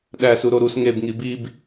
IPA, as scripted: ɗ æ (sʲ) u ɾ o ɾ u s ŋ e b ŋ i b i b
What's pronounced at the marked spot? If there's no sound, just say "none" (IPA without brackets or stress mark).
s